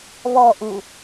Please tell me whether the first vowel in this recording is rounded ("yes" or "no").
yes